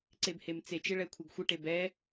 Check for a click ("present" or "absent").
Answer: present